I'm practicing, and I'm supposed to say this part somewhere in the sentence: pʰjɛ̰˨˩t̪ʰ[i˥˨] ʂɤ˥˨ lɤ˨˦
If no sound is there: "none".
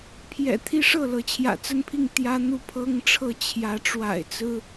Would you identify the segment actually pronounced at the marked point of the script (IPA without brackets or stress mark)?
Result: i˦